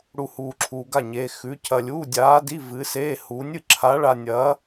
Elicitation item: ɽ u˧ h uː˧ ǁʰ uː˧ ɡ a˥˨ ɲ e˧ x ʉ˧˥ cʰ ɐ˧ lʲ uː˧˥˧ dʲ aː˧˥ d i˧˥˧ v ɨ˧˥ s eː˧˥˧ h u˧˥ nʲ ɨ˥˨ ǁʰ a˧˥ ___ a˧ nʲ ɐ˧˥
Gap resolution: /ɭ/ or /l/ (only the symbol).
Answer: ɭ